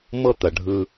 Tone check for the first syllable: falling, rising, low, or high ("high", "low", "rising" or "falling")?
high